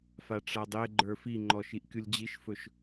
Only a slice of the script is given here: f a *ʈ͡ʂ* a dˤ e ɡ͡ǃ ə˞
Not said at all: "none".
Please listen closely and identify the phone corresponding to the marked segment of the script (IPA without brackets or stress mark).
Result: ʈ͡ʂ